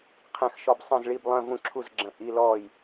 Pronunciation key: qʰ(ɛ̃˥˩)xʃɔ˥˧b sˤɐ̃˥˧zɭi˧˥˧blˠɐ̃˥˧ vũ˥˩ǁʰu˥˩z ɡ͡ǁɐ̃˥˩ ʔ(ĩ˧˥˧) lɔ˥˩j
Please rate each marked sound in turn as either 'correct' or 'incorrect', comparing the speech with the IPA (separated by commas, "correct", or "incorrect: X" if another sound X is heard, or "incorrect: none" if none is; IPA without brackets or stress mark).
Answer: correct, incorrect: i˧˥˧